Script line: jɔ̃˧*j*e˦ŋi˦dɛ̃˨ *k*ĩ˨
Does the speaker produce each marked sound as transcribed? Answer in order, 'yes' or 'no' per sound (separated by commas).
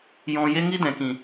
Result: yes, yes